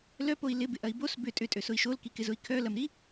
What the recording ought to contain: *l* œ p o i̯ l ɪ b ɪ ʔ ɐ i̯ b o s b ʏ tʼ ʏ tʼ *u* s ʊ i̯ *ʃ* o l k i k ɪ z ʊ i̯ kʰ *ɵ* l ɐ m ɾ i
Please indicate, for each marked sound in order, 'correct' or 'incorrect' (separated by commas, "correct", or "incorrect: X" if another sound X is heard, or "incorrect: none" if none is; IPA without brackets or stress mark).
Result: correct, incorrect: ø, correct, incorrect: œ